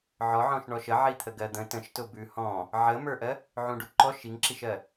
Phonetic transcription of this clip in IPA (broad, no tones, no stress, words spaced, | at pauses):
ʕɔʕɔ̃ʃɳɔʃ ə ʕit̪ʰəɡɜd̪ə̃ tə̃ʃtʊbʉ hɔ̃ | ʕəmə˞ʔɜ | ʕũɖuǃɔʃ iŋǁiʃɜ